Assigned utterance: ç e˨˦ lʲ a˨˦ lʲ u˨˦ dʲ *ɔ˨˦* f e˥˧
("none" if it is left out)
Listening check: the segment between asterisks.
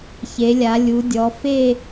ɔ˨˦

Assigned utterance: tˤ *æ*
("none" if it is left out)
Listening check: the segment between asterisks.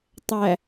æ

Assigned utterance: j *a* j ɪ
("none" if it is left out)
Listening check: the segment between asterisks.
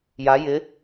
a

